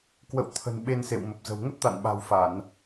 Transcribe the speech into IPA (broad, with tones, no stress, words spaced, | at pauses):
kwə̰˧˨wt̪ʰə̤˨˩n ɓe˧nsḛ˧˨wmə˨˩p̚zə̤˨˩w ŋə˦˥t̚t̪a̰˧˨nɓa̤˨˩wfa˧˩˨n